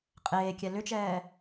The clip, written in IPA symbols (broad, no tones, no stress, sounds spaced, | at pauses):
qʼ eː kʲ ɛ l ʏ t͡ʃ ɛː